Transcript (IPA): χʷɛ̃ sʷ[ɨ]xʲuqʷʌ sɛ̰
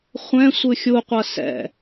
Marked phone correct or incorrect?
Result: correct